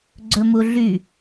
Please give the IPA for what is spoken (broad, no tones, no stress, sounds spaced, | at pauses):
ɡ͡ǀ ɵ m u ɮ y